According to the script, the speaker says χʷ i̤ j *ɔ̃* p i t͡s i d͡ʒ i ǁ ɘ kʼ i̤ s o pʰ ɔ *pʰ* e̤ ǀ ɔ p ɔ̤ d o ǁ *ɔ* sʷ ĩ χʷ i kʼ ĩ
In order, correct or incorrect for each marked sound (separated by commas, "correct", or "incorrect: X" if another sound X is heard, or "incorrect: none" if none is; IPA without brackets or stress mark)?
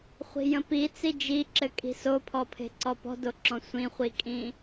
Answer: incorrect: ə̃, correct, incorrect: ɔ̃